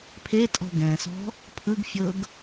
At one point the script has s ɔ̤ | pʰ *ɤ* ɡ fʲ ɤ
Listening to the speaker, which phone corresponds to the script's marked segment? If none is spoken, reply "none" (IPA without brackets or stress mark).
ɯ